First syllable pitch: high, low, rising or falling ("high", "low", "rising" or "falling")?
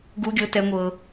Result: high